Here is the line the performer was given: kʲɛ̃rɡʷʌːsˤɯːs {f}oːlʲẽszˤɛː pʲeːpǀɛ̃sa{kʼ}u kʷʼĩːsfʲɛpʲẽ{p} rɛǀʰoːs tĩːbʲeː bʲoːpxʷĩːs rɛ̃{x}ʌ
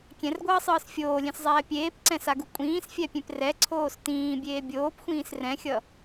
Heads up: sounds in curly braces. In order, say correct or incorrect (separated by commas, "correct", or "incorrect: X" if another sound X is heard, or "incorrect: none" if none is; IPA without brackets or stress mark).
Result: incorrect: fʲ, incorrect: ɡ, correct, incorrect: xʲ